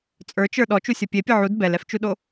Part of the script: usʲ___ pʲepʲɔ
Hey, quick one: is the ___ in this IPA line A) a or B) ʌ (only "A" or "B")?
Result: B